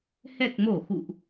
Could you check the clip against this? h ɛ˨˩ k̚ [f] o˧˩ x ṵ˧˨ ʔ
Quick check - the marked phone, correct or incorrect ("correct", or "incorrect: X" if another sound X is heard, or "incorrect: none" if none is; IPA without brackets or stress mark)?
incorrect: m